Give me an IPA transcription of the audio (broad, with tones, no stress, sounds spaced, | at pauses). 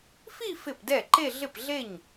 f i˥˧ f ɪ˥˩ p d ɛ˥˩ ǃ e˥˧ ɮ ɪ˥˩ p ɮ e˥˩ ɲ